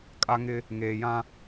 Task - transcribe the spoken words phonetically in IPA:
kʼ a˦ ŋ ɪ˦ | ŋ eː˨ j ã˦

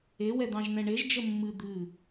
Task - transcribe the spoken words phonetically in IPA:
e w ɛ d̪ ɑ̃ ʒ n ɛ̃ ɳ e ʒ d͡ʒ ə mː ɨ d̪ ɨ

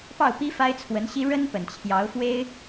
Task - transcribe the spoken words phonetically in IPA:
p ɑ˥˩ ʊ̯ p i˥ f a˥ ɪ̯ t͡sʰ w ə˧˥ n ɕ i˥ ɻ ə˥ n p ə˨˩ n t͡ɕʰ j ɑ˧˥ ʊ̯ f w e˥ ɪ̯

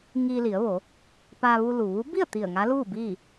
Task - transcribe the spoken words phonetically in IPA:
ŋ iː˧ l i˩˧ ə̯ ʋ o˩˧ | p aː˧ ʋ u˧ l u˩ ʋ u˧˥ b i˥˨ ə̯ t̪ i˧˩ ə̯ ŋ a˧˥ l uː˥˨ b iː˥˨

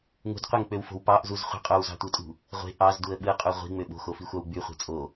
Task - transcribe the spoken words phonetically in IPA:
ŋ ṳ d qʷ e ŋ k͡p ø w f o̤ w p ɑ ʔ z u z χʷ i̤ qʼ o w z ɑ̤ tʷ ɯ tʼ ṳ | ʁʷ e̤ ʔ ɑ z d u ə̯ ɓ ɯ qʼ u ʁʷ i̤ ŋ͡m ø ɓ o̤ x o f i xʷ ɑ w ɡ͡b y χʷ e̤ t͡sʼ o

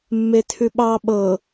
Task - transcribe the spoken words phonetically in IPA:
mː e tʰ ʉ ɓ ɑ ɓ ɤ

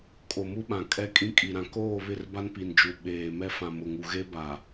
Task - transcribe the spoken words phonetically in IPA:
kʼ o˨ m u˦ ɓ ã˨ kʼ ɛ˦ kʼ ĩ˦ kʼ i˨ ɾ ã˨ k oː˦˨ β ɪ˦˨ r b a˦ n p i˨ n d͡ʒ u˨ ɓ eː˨ m ɛ˦ f ã˨ m ʊ˨ ŋ u˨ ɣ e˦ b a˨

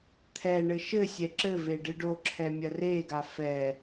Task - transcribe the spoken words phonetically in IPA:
t̪ʰ ɛ ɳ ɘ ʃ ɘ sʲ ɛ ǁ ɘ v e ɖ ɨ ɖ o ǁʰ ɛ mʲ ɐ r e ɡ a f ɛ

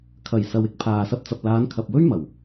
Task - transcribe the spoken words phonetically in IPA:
kʰ ɐ˨˩ j s ɐ˨ w ɪ˥ k̚ pʰ aː˨ s ɐ˧ p̚ t͡s ɐ˨ p̚ l aː˨˧ n kʰ ɐ˨ p̚ w ɵ˥ ɥ m ɐ˨˩ w

